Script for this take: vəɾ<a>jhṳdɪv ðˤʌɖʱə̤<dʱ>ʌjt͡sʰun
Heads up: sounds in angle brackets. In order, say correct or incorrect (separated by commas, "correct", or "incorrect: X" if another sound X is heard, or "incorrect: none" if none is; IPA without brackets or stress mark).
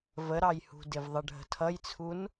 incorrect: ɑ, incorrect: tʰ